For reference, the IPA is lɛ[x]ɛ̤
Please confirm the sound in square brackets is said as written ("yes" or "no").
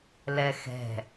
yes